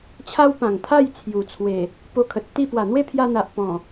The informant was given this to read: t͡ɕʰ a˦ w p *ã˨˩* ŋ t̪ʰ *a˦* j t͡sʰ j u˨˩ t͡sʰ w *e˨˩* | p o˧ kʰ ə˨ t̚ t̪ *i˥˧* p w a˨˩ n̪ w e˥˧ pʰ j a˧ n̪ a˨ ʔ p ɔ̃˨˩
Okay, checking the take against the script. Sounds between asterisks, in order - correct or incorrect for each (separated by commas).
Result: correct, incorrect, correct, correct